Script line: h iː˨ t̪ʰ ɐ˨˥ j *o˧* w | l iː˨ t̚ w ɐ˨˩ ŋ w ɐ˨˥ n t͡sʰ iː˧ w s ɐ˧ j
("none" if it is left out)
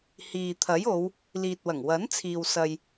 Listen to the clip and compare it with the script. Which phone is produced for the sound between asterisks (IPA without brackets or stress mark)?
o˨˧